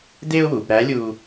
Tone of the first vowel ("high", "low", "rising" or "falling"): high